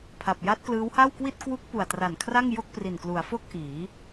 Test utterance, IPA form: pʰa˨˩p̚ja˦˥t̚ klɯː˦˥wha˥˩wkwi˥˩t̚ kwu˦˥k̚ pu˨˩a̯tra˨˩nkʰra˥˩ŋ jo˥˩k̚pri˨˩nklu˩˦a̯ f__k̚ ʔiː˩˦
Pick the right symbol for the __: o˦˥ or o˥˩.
o˥˩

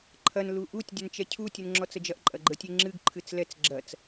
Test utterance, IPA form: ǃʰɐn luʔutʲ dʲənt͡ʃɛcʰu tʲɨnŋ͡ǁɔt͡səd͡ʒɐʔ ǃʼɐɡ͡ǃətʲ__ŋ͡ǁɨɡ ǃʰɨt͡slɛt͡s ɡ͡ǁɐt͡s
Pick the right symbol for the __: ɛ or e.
e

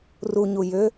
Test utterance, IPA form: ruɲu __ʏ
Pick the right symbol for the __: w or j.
j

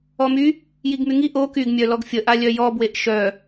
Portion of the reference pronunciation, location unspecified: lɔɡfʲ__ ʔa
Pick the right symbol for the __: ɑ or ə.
ə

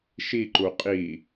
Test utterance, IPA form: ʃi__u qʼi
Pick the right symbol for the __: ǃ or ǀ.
ǃ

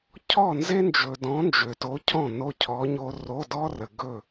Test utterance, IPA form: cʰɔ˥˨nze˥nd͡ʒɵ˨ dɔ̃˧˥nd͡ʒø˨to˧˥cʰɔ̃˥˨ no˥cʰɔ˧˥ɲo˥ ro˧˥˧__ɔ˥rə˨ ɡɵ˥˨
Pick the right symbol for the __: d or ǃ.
d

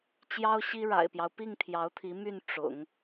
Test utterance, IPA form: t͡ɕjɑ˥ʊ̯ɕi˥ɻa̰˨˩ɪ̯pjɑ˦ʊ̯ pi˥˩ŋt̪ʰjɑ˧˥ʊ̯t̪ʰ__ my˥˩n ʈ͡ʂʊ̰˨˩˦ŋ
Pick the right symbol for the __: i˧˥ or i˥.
i˧˥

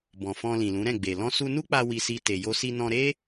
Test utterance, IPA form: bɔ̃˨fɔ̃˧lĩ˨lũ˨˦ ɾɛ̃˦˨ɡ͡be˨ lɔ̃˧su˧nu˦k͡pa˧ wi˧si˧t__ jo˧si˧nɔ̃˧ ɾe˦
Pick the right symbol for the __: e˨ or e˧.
e˨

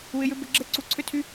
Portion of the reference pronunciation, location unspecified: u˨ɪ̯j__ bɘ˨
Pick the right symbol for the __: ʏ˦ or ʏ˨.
ʏ˦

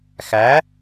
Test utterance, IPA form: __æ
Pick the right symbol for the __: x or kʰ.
x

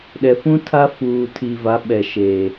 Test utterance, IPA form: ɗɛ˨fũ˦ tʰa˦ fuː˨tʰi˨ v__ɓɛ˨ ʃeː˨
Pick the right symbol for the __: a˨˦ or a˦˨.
a˨˦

